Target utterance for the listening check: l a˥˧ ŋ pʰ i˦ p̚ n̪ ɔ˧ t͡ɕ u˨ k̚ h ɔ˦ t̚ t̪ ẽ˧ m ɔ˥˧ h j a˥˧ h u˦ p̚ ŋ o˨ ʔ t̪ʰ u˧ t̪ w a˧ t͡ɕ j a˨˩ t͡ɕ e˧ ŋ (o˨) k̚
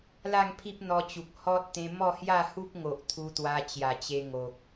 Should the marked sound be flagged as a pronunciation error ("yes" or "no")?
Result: no